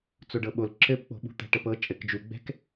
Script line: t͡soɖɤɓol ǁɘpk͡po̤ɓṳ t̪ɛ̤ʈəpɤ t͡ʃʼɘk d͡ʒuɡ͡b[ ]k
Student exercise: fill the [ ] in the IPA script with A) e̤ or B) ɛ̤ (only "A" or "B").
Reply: B